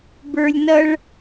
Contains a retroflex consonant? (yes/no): yes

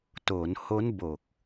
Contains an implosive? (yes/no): no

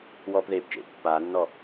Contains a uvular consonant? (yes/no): no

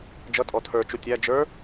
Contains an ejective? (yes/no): yes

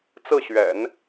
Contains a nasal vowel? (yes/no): no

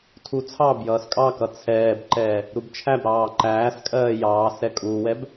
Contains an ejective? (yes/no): yes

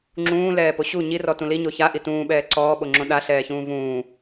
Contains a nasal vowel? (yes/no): yes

